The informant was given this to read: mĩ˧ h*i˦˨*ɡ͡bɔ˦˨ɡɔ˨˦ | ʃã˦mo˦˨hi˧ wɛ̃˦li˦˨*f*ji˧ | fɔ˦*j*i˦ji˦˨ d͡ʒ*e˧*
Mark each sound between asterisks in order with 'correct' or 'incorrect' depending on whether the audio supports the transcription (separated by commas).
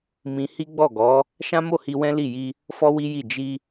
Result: incorrect, incorrect, incorrect, incorrect